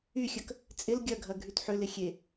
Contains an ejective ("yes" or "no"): yes